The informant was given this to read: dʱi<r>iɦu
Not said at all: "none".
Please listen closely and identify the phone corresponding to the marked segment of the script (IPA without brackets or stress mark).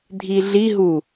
ɮ